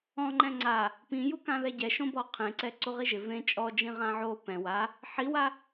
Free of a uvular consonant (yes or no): no